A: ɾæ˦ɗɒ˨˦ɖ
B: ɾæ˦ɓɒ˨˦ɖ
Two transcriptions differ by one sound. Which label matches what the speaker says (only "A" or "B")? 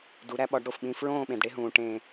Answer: B